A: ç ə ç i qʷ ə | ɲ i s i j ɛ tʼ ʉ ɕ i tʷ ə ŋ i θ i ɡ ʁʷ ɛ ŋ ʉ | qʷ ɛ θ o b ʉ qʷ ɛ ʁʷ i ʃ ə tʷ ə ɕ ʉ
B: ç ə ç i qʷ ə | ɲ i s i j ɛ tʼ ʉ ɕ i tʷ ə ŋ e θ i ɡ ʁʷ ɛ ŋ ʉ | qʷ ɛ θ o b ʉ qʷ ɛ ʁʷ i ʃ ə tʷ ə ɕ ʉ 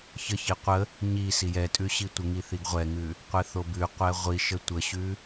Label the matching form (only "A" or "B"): A